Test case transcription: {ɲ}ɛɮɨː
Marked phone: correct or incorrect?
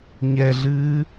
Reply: correct